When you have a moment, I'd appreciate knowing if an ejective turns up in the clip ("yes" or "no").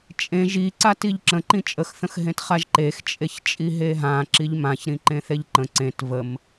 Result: yes